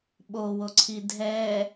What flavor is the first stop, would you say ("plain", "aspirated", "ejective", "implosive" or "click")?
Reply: implosive